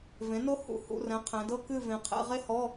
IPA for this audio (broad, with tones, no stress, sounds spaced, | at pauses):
v ẽ˩˥ n o˥ h ṵ˩˥ h ṵ˥˨ r ɛ̃˩˥ qʰ ɛ̃˩˧ d ɤ˧˥˧ k ɨ˥˨ v ẽ˩˧ qʰ ɛ̰˧˥˧ ʁ e˥ h ɔ˧˥˧